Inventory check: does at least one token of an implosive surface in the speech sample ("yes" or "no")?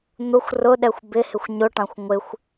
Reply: yes